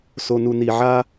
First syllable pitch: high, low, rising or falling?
low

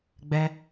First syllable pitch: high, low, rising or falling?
high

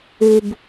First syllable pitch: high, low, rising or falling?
low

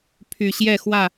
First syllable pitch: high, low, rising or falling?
low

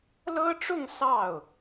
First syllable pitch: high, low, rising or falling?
high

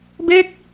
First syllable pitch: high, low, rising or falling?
falling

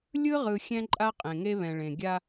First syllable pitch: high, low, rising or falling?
high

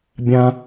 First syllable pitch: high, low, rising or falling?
high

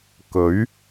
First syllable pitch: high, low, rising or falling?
rising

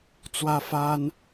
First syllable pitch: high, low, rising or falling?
high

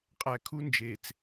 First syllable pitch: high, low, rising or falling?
low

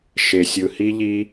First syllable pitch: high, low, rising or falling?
low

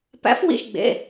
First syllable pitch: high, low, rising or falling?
rising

